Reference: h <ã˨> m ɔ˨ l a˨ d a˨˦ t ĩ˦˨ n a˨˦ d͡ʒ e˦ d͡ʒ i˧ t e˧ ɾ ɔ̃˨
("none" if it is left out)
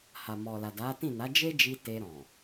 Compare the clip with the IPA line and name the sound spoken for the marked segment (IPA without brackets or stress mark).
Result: a˨